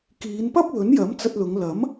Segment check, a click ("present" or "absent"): absent